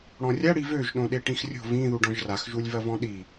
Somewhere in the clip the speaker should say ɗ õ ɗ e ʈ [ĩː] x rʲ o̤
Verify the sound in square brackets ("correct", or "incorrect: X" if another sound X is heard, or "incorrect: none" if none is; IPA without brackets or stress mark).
incorrect: ĩ